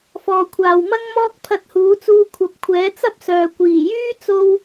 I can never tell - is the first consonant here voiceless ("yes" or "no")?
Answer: yes